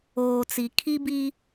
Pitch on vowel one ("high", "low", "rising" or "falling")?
low